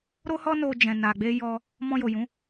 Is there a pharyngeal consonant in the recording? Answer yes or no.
no